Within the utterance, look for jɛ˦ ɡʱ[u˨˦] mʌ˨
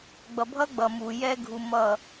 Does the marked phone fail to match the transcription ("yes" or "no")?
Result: yes